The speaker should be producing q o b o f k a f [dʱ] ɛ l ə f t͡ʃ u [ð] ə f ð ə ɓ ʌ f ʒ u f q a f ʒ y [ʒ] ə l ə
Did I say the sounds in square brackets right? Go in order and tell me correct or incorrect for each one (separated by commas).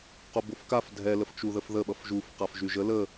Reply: correct, correct, correct